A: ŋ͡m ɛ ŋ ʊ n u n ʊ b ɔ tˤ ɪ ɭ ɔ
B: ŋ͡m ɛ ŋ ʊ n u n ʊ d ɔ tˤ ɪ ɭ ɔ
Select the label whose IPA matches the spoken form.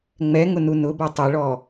A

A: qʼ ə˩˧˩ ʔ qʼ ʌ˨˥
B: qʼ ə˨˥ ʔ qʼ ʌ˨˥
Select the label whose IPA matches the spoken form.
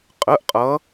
A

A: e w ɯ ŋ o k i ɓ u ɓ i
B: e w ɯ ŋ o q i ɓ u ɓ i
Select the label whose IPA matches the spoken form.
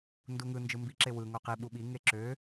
B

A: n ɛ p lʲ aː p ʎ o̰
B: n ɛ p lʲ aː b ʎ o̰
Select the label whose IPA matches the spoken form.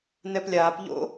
A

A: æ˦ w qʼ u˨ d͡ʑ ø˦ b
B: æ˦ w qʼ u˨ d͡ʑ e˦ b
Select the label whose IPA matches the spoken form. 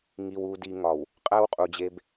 B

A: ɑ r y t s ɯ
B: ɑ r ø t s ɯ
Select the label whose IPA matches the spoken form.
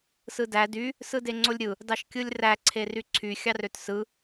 B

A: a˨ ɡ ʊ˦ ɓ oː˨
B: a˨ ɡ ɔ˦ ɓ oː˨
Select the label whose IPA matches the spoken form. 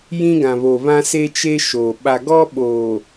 B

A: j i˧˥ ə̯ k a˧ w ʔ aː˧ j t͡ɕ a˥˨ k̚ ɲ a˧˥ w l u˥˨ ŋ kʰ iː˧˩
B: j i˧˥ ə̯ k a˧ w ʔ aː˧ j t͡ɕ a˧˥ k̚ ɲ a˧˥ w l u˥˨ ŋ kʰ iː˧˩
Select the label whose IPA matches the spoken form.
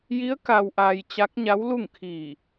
B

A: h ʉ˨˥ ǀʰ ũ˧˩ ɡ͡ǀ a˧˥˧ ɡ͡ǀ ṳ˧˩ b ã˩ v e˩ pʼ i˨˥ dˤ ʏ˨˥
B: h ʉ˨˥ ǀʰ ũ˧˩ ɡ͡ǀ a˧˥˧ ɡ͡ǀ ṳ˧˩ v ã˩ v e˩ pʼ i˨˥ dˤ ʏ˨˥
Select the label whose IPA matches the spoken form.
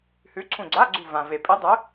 B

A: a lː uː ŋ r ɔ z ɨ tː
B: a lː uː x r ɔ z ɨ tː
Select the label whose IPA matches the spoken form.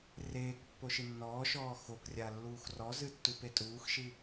B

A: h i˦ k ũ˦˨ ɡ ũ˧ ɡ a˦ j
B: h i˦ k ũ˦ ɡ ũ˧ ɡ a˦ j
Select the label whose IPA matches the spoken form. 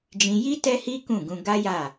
A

